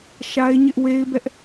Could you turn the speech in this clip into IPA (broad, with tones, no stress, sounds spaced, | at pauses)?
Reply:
ʃ a˦ ɪ̯ ɲ ɪ˦ ʔ w e˦ ɪ̯ b ɛ˦ ʔ